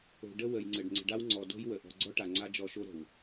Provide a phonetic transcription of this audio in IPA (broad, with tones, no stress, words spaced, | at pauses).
o̤˨ ɖə˦wə˨jŋ͡ǀə˨ɖ ŋ͡ǀə̤˨ɖa˦wŋ͡ǀɔ˨ do̤˦jwə˨ ʔɔ̤˨ɡ͡ǀɔ˦ʈa˨ŋ͡ǀa˦ d͡ʒɔ˦ʃo˦ɾə̤˨w